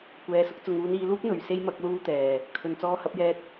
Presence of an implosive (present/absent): absent